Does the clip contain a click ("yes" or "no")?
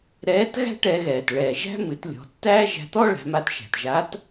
no